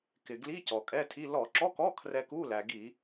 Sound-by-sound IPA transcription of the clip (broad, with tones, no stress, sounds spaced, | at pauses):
k ɪ˩ ɡ l i˧˥˧ c ɔ˩ kʼ ɛ˧˥˧ tʰ i˧˥˧ l ɔ˧˩˧ ǁ ɔ˧˥˧ k ɔ˧˥˧ kʰ r ɛ˧ k u˧˥˧ l æ˩ ɡ i˧˩˧